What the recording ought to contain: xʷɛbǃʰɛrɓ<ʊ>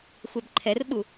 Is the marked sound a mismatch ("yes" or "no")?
yes